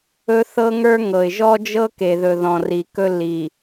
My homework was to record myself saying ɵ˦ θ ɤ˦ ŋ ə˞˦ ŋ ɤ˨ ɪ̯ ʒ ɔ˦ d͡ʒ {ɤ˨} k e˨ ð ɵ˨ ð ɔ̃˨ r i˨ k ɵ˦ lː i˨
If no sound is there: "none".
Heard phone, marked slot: ɤ˦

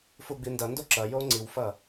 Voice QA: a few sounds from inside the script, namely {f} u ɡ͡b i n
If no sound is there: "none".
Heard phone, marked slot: f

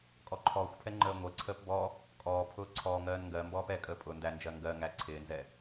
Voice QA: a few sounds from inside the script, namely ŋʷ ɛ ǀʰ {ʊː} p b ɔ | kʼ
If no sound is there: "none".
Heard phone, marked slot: əː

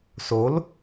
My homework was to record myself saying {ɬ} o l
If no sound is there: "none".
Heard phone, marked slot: s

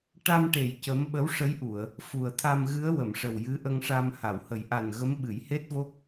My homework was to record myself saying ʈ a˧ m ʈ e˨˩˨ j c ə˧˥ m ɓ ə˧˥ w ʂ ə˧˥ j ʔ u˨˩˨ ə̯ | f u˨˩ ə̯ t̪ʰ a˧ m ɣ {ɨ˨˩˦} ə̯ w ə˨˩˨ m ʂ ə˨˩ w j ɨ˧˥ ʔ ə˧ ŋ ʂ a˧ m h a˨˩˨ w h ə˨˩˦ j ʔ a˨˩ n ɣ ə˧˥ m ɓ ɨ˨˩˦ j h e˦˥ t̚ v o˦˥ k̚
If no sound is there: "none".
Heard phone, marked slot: ɨ˧˥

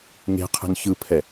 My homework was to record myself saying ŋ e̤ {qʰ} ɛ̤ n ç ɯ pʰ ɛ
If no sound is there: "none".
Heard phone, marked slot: qʰ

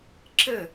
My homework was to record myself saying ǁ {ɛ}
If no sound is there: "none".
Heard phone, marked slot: ɘ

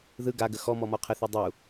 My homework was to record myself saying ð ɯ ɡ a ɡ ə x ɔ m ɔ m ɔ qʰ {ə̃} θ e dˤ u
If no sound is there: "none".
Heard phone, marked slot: ə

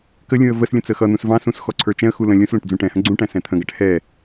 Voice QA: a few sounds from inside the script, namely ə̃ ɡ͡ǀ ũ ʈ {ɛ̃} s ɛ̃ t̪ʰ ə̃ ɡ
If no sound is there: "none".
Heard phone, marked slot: æ̃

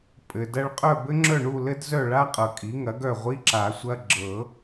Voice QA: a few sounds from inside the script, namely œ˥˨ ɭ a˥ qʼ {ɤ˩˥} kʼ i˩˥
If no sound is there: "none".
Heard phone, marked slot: ɤ˨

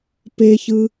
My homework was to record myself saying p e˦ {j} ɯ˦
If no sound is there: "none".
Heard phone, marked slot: ç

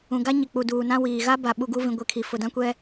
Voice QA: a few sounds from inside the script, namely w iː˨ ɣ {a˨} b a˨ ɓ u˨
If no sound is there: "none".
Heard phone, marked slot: a˦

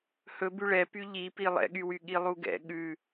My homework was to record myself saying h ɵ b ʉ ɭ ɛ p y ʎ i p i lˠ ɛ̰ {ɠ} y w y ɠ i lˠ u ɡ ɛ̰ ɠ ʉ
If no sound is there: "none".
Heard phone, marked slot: ɠ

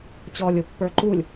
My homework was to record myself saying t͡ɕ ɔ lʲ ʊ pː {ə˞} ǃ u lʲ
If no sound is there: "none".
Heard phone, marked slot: ə˞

